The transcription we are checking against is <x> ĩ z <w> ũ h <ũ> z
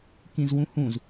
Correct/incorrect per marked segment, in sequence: incorrect: k, correct, correct

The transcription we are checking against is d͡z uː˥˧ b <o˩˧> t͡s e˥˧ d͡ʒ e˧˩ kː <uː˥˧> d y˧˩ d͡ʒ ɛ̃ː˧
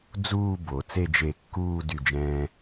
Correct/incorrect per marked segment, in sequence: correct, correct

